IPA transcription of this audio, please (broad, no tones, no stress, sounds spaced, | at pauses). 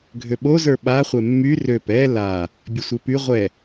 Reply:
ɡʱ ø ɓ o z ə˞ ɓ a χʷ ɛ mː y r ø p ɛ l a | bʲ ə sʷ e p y ʁʷ ɛ